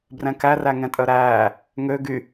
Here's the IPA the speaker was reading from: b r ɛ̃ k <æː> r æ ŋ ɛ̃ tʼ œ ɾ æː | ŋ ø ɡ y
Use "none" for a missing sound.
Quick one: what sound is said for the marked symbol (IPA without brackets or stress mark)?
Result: æ